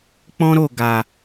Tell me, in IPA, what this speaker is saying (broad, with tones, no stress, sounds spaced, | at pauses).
k͡p ɔ̃˦ ɾ o˦˨ ɡ a˨